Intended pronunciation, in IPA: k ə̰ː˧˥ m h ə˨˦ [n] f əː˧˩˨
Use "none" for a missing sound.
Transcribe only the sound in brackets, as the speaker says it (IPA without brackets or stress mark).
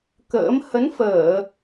n